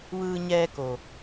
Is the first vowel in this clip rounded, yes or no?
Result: no